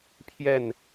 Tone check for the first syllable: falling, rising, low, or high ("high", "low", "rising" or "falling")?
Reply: falling